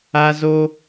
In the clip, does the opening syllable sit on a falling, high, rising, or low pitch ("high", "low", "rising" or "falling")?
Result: high